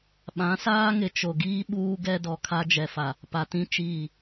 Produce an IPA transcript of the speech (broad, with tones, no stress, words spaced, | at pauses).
ɓã˨˦saː˦ŋɪ˨ t͡ʃo˨ɡiː˦ ɓuː˦ɡɛ˦dɔ˨ kʰa˦d͡ʒɛ˨fa˨ | pa˨tĩ˦ t͡ʃiː˦˨